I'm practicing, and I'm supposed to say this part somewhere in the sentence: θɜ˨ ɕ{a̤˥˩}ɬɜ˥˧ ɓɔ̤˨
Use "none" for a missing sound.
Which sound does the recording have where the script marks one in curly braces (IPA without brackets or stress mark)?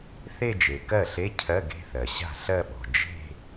a̤˥˩